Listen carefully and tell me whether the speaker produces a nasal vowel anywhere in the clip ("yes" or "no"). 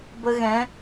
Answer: yes